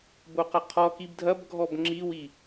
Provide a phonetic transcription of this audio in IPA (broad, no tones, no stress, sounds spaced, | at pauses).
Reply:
b o q ɐ qʰ ɔ k i b dʱ ɐ b ɡʱ ɔ b ŋ͡ǁ i w i